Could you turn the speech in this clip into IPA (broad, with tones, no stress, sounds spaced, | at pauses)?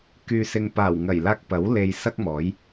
k yː˨ s ɪ˨ ŋ p aː˨˩ w ŋ ɐ˨˩ j l aː˧ k̚ p ɐ˨˥ w l e˧ j s ɐ˥ k̚ m ɔː˨˥ j